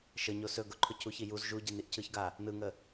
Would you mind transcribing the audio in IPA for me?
ʃəɲo sɵ ɡʊǃʰʊ cʰuçi juz ʒu ɟiniʔcʰɯçɡa | nɯŋə

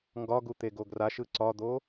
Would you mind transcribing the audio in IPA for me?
ŋɡɒɡu t̪eɡoɡraʃɯ ǀɒd̪o

